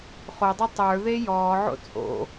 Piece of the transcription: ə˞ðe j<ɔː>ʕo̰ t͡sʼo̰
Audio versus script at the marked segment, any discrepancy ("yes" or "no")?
no